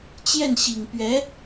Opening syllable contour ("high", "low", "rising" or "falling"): falling